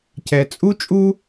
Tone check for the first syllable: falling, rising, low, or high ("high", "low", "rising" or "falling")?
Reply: low